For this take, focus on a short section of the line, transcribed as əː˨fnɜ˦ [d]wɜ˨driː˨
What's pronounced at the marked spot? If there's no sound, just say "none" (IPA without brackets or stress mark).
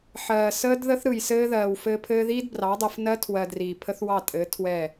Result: tʰ